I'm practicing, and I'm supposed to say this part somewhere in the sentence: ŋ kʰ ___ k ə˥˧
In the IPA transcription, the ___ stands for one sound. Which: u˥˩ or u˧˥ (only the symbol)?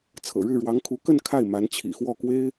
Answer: u˧˥